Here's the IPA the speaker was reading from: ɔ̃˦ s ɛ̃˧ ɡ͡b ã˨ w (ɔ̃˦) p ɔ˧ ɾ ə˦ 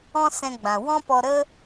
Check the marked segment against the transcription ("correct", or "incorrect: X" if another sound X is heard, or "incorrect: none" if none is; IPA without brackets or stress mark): correct